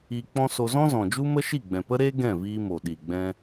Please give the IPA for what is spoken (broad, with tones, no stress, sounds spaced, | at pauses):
iː˧ k͡p ɔ̃˦ s o˧ z ɔ̃˦ z ɔ̃˨ d͡ʒ u˦ m ə˦ ʃ i˦˨ ɡ͡b ɛ̃˨ p ə˦ ɾ eː˦ ɡ ɛ̃˦˨ v iː˧ m o˨ ɗ i˨ ɡ͡b ɛ̃˧